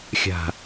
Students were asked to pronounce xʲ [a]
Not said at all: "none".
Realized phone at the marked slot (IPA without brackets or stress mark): a̤